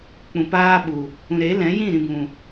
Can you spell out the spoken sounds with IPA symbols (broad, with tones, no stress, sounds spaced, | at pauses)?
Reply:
k͡p ũ˨ p aː˦ ɓ u˨ | ũ˨ ɾ e˨˦ l ɛ̃˨˦ j ĩ˦˨ ɾ ĩ˨ b ũ˨